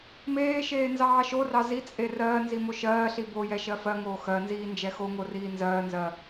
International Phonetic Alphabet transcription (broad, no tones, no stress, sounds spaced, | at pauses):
m eː ʃ eː n z ɑː ʃ o r ɑ z i t͡sʼ e r ɜː n z i m o ʃ ɜː ɬ i b o j ɛ ʃ ɜ f ɜ ŋ oː x ɜ n z iː n d͡ʒ ɛ x o ŋ o r iː n z ɜː n z ɜ